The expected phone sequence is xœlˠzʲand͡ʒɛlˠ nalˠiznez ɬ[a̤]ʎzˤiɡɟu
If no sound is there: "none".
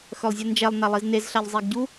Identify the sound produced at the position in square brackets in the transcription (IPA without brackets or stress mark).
a